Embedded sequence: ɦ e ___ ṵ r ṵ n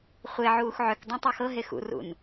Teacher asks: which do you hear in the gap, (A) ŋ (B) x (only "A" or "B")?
B